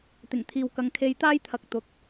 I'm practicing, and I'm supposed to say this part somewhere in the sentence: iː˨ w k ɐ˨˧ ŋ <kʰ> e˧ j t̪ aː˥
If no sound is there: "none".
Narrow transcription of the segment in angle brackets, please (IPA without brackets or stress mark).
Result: kʰ